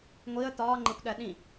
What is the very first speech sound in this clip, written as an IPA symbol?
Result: ŋʷ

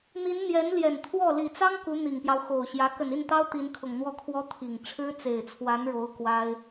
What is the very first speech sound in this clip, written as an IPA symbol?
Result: n̪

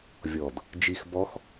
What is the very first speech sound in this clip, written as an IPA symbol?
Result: vʲ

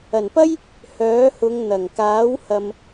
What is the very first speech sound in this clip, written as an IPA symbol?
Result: ɐ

